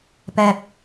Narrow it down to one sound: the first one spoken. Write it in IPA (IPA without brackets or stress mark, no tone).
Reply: p